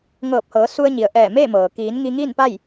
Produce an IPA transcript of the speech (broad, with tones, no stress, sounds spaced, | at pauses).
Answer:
ŋ ɤː˧˩ p̚ h ɤː˩˧ s u˧ ə̯ ɲ i˩ ə̯ ʔ ɛː˧˩ m eː˥˨ m ɤː˩ k iː˩˧ n ŋ i˧ ŋ iː˥˨ n p a˥˨ j